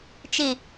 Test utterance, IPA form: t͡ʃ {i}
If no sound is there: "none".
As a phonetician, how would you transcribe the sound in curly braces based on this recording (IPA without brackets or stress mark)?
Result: i